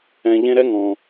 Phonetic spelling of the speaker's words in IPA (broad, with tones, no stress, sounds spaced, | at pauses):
ɛ̃˨ ʎ ẽ˦ ɾ ɛ˥ ŋ ɔ̃˩